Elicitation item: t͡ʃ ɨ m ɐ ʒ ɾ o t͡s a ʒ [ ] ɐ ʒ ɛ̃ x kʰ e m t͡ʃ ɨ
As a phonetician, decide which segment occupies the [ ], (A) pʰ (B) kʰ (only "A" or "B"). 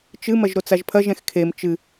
A